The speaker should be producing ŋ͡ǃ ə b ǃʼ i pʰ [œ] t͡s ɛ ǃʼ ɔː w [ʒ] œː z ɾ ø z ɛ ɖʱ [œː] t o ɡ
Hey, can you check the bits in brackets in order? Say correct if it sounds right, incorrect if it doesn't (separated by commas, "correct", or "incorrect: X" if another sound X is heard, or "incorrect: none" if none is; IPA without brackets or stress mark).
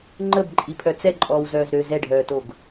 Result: correct, incorrect: z, correct